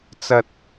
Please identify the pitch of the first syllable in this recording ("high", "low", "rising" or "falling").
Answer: high